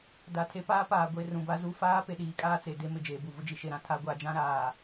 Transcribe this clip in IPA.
d a˨ tʰ e˦ p aː˦ p aː˨ ɡʷ e˦˨ r ũ˨ b a˦ z u˦ f aː˦ p e˨ ɗ iː˦ kʼ aː˦ t͡s e˨ d e˦ m ɪ˨ d͡ʒ eː˨ b u˨ v ʊ˦ d͡ʒ i˨ ʃ e˨ ɾ ã˨ tʰ a˦ ɡʷ a˨˦ d͡ʒ ã˦ ɾ aː˨

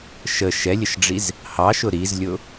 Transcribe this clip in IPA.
ʃ ə ʃ ɛ lʲ ə ʃ ɖ͡ʐ i z | h ɑ ʃ ʊ ɾ i z lʲ ʊ

